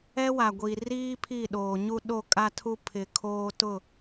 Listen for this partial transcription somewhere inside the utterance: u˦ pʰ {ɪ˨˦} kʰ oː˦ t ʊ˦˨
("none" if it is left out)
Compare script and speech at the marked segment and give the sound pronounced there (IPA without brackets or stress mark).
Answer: ɪ˨˦